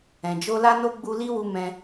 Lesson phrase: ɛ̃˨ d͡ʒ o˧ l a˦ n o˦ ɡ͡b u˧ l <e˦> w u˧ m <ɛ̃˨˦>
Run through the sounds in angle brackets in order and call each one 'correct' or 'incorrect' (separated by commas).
incorrect, incorrect